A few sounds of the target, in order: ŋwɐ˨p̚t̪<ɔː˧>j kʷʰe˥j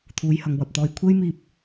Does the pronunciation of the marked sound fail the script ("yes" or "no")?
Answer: no